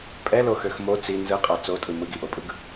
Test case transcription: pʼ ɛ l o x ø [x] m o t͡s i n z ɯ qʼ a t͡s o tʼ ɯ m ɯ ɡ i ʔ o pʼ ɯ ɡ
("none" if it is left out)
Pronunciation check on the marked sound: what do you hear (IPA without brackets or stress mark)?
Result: x